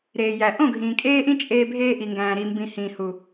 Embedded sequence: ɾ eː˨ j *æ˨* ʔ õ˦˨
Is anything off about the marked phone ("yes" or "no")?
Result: no